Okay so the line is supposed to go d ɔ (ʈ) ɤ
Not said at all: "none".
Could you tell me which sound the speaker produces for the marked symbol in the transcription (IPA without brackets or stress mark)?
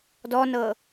n